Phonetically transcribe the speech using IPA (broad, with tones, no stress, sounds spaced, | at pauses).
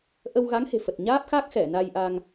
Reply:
ʔ ə˧ w ɣ a˨˦ ŋ h e̤˨˩ f ə˨˩ t̚ ɲ aː˦˥ p̚ x a˦˥ k̚ x ɛ˧˩ n a˧ j ʔ a˧ ŋ